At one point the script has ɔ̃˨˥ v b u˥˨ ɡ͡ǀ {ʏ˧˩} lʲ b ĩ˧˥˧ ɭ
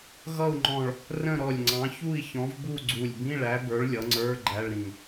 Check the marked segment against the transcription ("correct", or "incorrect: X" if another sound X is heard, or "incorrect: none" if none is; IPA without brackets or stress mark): incorrect: u˧˩